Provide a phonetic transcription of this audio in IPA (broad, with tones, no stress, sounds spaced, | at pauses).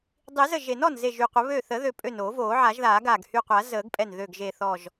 dˤ i˨˩˦ z ə˧˩ ʒ e˨˩˦ n ɔ˧˩ n z e˧˩ ʒ y˧˩ qʷ ə˨˩˦ β ø˧˩ θ ə˨˩˦ ð ø˨˩˦ pʼ ø˧˩ n oː˨˩˦ v oː˨˩˦ ʕ a˨˩˦ ʒ ð aː˨˩˦ ɡ aː˧˩ ɡ h y˧˩ qʷ a˨˩˦ z əː˨˩˦ ɡ pʼ ɛ˧˩ n ð ø˧˩ ɡ ʒ e˧˩ θ ɔ˧˩ ʒ